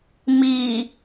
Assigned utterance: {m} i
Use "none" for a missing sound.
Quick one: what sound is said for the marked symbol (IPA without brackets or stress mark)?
m